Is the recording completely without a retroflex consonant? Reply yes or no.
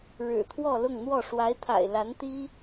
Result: no